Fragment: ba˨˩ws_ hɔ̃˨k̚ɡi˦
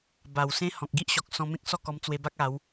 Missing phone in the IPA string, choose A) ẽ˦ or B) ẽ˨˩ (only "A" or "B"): A